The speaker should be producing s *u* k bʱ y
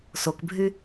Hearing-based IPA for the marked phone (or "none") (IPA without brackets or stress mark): o